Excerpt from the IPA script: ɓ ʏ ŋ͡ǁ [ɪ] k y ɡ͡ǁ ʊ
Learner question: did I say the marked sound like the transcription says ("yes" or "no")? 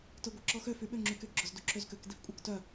no